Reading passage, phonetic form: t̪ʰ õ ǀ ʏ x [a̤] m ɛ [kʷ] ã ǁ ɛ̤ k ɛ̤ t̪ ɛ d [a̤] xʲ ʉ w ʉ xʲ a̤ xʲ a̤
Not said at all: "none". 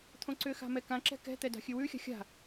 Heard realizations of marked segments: a̤, k, a̤

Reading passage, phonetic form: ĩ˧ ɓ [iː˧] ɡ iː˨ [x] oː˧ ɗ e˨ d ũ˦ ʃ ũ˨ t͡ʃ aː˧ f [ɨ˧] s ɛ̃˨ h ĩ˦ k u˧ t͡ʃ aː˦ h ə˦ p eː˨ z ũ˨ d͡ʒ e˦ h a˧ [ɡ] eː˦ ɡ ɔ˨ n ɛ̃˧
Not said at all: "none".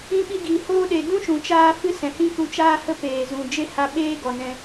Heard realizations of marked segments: i˧, h, ɨ˧, ɓ

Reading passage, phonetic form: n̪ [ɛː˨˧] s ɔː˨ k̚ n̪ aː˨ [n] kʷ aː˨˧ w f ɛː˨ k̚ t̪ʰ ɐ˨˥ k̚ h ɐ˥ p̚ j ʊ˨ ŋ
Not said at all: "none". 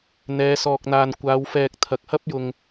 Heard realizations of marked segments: ɛː˨˧, n

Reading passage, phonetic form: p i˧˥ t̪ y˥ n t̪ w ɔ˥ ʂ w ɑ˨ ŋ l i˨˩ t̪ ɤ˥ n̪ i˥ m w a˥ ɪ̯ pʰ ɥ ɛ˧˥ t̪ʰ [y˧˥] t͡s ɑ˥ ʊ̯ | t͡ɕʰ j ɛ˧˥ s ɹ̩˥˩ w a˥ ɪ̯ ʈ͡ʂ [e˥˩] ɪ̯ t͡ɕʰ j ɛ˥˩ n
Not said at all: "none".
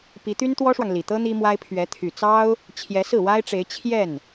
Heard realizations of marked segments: y˨˩, e˧˥

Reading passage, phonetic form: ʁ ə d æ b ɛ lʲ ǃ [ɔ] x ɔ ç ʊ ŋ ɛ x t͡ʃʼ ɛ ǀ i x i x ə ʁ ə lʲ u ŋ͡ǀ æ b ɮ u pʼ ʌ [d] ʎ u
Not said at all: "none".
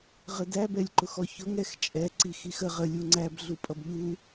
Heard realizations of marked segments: ʊ, b

